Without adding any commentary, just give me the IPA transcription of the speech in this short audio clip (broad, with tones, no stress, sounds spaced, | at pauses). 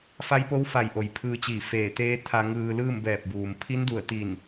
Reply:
f a˧˥ j p o˧˥ w f a˧˩ j ʔ o˩ j pʰ ɯː˧ t͡ɕ iː˧˩ f eː˧˩ t̪ eː˧˥ t̪ʰ a˧ ŋ ɯː˧ l ɯː˥˨ m b ɛː˧˩ p̚ b uː˩ m pʰ i˧˥ n d u˧˩ ə̯ t̪ i˧˩ n